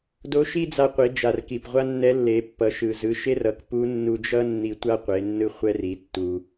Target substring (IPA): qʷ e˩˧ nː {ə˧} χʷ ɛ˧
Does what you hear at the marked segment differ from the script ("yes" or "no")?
yes